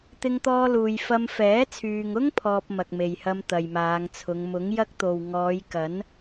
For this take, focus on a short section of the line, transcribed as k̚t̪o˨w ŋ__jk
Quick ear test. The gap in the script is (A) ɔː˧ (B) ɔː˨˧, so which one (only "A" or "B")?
B